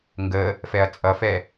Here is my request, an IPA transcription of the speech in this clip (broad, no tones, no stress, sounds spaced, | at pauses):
ŋ ɡ ə | f ɛ ɐ̯ t͡sʼ ʌ f ɛ